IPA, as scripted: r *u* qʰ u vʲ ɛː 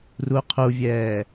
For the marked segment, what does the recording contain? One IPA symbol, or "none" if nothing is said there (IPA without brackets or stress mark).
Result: u